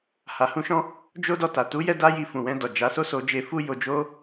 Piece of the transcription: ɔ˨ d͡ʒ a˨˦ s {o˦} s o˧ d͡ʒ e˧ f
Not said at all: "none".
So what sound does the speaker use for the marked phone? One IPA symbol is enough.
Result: o˦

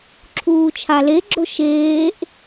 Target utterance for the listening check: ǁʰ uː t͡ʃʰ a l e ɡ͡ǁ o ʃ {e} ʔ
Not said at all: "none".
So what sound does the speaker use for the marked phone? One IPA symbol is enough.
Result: eː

